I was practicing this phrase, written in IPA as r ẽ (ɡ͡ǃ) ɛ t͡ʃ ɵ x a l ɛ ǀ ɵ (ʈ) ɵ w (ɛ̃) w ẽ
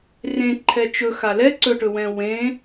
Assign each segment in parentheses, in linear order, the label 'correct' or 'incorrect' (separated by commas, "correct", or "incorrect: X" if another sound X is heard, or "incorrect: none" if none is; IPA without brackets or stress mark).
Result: incorrect: ǃʰ, correct, correct